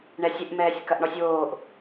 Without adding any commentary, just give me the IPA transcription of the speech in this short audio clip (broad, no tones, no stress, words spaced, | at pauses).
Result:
ɳɛsʲɘʔ mɛːsʲkɐʔɳɔsʲwoːʔ